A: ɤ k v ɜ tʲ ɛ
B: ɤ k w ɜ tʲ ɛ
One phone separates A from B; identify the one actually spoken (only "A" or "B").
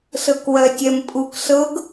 B